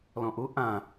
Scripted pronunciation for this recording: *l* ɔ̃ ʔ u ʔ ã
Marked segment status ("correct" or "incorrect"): correct